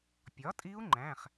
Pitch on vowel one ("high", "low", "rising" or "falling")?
rising